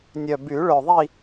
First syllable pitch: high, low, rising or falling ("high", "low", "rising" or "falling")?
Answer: low